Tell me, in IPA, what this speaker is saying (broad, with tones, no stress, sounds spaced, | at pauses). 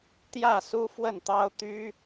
t̪ j ä˥˨ s u˦ f w ə˥˨ n t̪ ɑ˦ ʊ̯ t̪ y˦